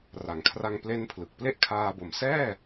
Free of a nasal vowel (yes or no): yes